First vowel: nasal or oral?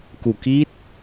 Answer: oral